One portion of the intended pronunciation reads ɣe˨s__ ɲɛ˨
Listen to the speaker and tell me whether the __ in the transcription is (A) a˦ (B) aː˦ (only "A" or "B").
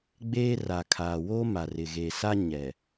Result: A